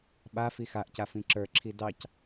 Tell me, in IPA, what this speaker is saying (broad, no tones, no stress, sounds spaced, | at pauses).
ɓ a f i x a ʔ c a f ĩ ǁ ə˞ ǁʰ i d ɑ c